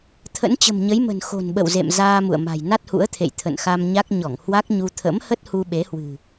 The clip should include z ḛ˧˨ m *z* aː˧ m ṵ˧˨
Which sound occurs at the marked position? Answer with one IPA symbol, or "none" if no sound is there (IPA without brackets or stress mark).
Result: z